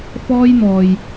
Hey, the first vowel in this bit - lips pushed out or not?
yes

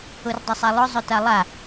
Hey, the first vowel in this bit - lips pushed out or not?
yes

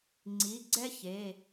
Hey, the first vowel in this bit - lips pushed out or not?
no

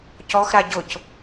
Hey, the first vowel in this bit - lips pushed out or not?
yes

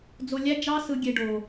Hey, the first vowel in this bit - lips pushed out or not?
yes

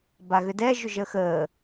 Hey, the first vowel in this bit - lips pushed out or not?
no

